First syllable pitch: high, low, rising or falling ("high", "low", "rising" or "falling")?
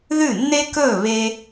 falling